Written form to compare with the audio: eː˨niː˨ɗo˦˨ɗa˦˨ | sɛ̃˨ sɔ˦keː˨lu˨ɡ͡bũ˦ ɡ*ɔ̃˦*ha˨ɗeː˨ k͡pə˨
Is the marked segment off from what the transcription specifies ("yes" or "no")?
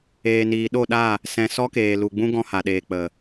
no